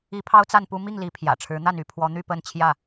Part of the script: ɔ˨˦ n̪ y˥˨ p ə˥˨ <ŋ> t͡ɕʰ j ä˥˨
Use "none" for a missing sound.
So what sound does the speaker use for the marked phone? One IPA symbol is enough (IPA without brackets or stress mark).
n